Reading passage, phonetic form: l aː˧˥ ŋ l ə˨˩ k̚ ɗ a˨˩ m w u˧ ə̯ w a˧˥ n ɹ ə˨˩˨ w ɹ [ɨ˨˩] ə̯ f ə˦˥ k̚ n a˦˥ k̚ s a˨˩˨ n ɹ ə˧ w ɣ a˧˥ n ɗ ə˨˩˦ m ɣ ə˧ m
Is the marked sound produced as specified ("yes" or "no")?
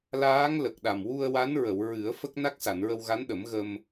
no